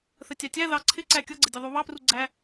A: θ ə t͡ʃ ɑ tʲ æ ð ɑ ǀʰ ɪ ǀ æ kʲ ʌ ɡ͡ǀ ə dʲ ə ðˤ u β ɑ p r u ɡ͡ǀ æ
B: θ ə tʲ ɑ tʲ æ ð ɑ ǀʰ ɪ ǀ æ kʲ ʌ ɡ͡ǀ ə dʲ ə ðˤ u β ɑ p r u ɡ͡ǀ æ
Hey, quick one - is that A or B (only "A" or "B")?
B